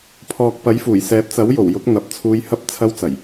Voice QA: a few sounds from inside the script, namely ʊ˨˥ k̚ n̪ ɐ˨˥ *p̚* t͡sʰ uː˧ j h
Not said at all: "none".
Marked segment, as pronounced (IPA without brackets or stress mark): p̚